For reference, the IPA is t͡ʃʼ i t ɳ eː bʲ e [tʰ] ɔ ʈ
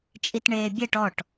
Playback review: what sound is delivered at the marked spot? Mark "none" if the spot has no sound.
ʈ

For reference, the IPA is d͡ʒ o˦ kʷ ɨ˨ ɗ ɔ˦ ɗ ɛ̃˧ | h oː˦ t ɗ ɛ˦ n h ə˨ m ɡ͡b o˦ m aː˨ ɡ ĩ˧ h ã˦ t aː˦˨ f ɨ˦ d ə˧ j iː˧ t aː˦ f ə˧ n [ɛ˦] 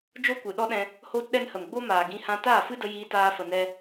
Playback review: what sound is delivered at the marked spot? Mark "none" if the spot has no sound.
ɛ˦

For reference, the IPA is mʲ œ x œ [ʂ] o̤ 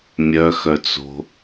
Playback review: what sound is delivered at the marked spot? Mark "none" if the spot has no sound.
t͡s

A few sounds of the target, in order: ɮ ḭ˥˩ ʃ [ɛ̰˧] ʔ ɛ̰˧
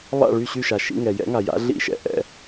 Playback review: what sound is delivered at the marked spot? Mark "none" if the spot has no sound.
ɛ̰˧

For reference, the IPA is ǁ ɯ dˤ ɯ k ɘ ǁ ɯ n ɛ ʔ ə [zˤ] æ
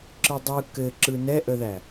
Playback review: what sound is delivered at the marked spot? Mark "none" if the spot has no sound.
ð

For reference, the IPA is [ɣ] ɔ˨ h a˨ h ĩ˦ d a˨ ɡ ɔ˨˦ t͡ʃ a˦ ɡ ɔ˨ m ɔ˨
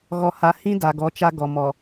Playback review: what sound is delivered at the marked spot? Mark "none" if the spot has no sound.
ɣ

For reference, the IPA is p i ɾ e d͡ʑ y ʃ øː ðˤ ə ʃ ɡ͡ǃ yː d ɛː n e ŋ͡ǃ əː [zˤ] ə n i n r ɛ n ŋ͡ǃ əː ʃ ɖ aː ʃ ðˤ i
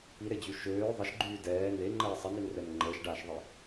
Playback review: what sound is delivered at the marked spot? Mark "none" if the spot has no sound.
sˤ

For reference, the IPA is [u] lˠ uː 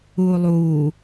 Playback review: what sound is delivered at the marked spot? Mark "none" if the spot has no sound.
uː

